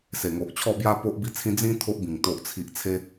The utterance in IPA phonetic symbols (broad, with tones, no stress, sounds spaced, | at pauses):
s e˨˩ ŋ o˨ ʔ t͡ɕʰ ɔ˥˧ b j a˦ p o˦ ʔ b i˦ t͡sʰ ĩ˦ d͡z ĩ˦ t̪ʰ o˦ ʔ b ĩ˨˩ ŋ t̪ o˨ ʔ t͡sʰ i˨ ʔ t͡sʰ e˧